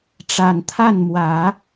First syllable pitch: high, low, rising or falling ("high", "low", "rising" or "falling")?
low